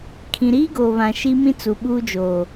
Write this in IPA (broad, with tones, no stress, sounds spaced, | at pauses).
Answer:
kʰ ĩ˨ ɾ iː˦ ɡ oː˨ β ã˨ ʃ i˦ m ĩ˦ t͡s u˨ ɓ uː˦ d͡ʒ oː˨